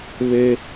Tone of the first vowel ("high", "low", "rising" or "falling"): high